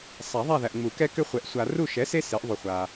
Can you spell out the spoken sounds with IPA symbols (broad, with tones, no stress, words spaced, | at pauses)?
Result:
sˤa˨˩˦ðˤa˦˨ðæ˨ʔŋ͡mu˨˩˦ kɛ˦kʏ˦χʷɛ˩˥ʔ sʷa˨ru˦˨ʃɛ˩˥se˦ se˩˥ʔðˤu˨χʷa˨